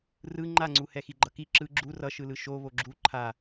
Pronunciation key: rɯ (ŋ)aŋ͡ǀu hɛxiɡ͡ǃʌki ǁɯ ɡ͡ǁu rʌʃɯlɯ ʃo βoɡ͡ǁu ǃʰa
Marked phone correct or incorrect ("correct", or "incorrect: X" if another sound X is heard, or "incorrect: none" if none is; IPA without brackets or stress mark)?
incorrect: ŋ͡ǃ